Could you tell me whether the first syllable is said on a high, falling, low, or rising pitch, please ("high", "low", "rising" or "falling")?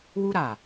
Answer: high